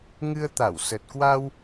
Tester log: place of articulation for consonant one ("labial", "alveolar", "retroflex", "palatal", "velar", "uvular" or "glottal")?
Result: velar